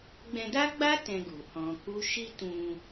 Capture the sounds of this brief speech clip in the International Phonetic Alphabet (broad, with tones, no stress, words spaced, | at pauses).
ɡ͡bɛ̃˧da˦ɡ͡ba˦ tɛ̃˧ɡu˨ hɔ̃˧ku˦ ʃi˦tũ˧